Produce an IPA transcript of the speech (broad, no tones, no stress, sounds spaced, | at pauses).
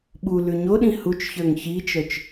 ɓ u l ʉ ɲ o ɗ ĩ h u t͡ʃ ç ə˞ ŋ ç i t͡ʃ œ t͡ʃ